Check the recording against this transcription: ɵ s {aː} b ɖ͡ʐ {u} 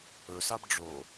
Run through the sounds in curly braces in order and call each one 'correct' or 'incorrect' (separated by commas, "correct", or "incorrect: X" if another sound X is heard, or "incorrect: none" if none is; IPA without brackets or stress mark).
incorrect: a, incorrect: o